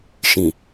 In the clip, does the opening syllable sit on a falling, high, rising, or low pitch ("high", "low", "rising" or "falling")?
low